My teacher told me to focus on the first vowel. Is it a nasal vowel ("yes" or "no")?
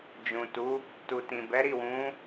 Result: yes